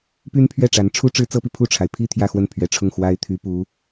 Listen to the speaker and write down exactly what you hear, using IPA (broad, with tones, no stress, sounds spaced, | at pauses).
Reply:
p y˥ n pʰ ɥ ɛ˥˩ ʈ͡ʂ a˧˥ n ʈ͡ʂʰ u˥ ʈ͡ʂ ɻ̩˥ t͡s ɤ˥ p i˨ pʰ u˥˩ ʈ͡ʂʰ a˩ ɪ̯ pʰ i˥˧ t̪ʰ j ä˥˧ x w ə˥˩ n pʰ ɥ ɛ˧˥ ʈ͡ʂʰ ʊ˥˩ ŋ x w a˥ ɪ̯ t̪ʰ y˧˥ p u˧˥